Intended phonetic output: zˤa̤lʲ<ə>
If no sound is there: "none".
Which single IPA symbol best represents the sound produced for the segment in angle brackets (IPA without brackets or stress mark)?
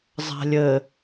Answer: ə